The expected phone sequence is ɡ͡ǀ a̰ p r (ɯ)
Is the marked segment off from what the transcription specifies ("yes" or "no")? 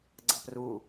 yes